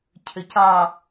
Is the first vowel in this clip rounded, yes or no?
yes